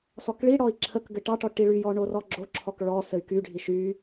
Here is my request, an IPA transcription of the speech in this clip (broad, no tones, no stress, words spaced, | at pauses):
sɔkɭiɽɔi̯ ǁʰək ɡɘʈɑʈɔ ʈiɭyjɔ ɳorɔɡ͡ǁoǁʰɔk ɭɔ sɘy̯kyɖʱi ʃy